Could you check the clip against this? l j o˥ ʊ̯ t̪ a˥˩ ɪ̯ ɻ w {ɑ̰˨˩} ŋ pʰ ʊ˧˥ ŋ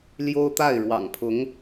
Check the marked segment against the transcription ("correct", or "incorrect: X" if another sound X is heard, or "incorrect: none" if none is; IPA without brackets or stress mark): correct